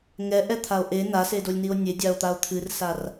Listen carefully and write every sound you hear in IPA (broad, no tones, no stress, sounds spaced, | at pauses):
ŋ ɛ ʔ ɛ t̪ʰ a o̯ ʔ e n a s e d o lʲ n i o̯ nʲ e dʲ a o̯ t̪ a o̯ t̪ʰ ɨ r s a r